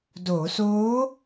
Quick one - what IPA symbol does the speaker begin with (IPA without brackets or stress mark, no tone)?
d